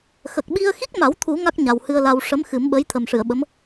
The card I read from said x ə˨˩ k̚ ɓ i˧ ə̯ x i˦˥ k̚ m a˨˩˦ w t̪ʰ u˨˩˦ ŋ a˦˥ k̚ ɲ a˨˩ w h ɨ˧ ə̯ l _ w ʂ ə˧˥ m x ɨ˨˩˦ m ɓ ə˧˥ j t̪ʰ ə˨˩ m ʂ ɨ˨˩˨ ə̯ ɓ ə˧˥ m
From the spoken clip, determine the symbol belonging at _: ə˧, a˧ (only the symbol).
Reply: a˧